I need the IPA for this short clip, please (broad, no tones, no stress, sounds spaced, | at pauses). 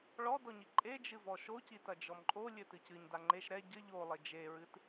ɭ ɔ d ɔ ɲ i ǃʼ e d͡ʒ ɨ v ɔ ʃ o c i t ɐ d͡ʒ ɔ m ǃʼ o lʲ ɘ t ɨ c ɨ ɲ d a ŋ͡ǃ e ʃ ɾ ɛ ɟ ɘ ʎ o lˠ e d͡ʒ e ɹ ɨ t